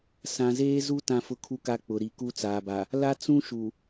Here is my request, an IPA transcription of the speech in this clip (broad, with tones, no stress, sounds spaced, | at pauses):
s ã˨ z eː˦ z u˦ t ã˦ f ʊ˦ kʰ u˦ k a˦ k͡p ʊ˨ ɾ i˨ k u˦ t͡s aː˨ b a˨ | l a˦ t͡s ũ˦ ʃ u˨